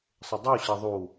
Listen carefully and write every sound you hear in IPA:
sˤɘdˤu ɕeðˤu

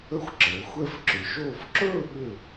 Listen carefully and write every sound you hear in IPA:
ə˥xʷǁəː˩˧ xʷɛ˥˧fǁʏ˩˧ʃoː˥˧f ǁɵː˥˧ɠʏ˧˩

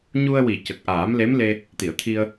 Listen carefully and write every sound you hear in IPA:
ɲu˧ə̯wi˨˩˨ cə˨˩k̚ʔaː˨˩˦mle˧˥mle˧ | t̪i˨˩˨ə̯t̪ʰi˧ə̯

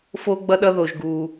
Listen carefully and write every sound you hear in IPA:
fo˦ɡ͡bʌ˦ɗʌ˦ðo˨ʒ ɡu˨

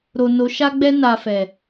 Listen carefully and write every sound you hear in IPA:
ɾo˨ no˨˦ʃa˦ɡ͡bɛ˦ na˧fɛ˨

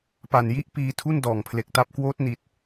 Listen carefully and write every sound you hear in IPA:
pa˨˩nji˥˩ʔ piː˧tʰu˥˩ndɔː˨˩ŋpʰle˨˩k̚ ta˦˥p̚kwoː˦˥t̚ ni˨˩t̚

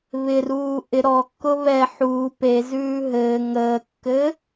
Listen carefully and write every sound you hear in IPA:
βɪruː ʔɪ ɾɔkːʊ βɛ ħuː pezʉː ɦɘː ŋəːkːɘ

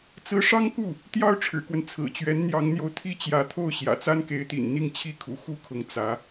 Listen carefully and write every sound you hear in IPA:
t͡sɹ̩˧˥ʂɑ˥ŋku˥˩ | t̪jɑ˥˩ʊ̯ʈ͡ʂʰɻ̩˨˩kwə˦n t͡sʰɹ̩˨˩t͡ɕɥɛ˧˥nn̪jɑ˧˥ŋn̪jo˧ʊ̯ t̪ʰi˥˩t͡ɕjä˧˥t̪ʰo˥˩ʊ̯ ɕjä̰˨˩t͡sa˥nke˧˥ɪ̯t̪ḭ˨˩n n̪i˥˩ŋt͡ɕʰi˥kʰṵ˨˩ xu˥kʰʊ˧˥ŋ t͡sä˧˥

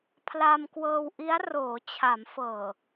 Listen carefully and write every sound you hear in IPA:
pʰlaː˧mkwɤː˧wʔi˦˥a̯ roː˩˦t͡ɕʰa˩˦m fɤː˨˩

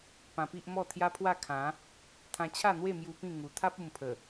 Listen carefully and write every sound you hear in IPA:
pã˧pi˦ʔmɔ˥˧ t̪ʰja˦pʰwa˥˧ kʰã˨˦ | t̪ʰã˧t͡ɕʰa˥˧n̪we˥˧mju˧ pĩ˥˧ ŋu˨˩t̪ʰa˦p̚ u˧mpʰə˨˩

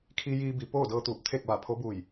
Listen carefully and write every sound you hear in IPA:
kʰi˧jiː˧bi˩˧ poː˥˨dɤː˧t̪uː˧˩p̚ t̪ʰe˥˨k̚ʋa˧˩pʰo˧˥buː˧˩j

